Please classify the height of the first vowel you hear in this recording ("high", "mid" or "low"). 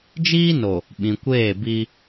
high